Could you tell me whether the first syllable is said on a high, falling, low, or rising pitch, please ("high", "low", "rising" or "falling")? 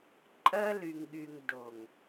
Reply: high